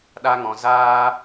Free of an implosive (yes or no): no